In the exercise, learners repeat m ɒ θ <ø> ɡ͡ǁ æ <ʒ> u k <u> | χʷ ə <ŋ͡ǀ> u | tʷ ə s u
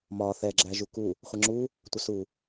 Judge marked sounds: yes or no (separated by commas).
no, yes, yes, no